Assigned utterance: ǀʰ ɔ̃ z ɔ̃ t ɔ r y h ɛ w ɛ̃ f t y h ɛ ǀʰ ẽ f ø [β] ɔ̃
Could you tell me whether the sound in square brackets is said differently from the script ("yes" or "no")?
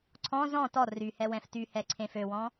yes